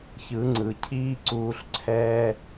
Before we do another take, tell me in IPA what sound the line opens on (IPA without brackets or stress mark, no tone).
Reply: ç